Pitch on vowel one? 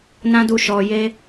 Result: high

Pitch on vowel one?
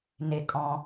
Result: falling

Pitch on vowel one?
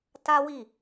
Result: high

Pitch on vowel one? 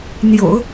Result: low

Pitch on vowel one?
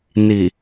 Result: low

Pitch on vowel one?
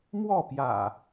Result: falling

